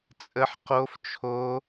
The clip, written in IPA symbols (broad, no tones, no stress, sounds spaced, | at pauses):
t͡sʼ ə ħ q o f t͡ʃʰ o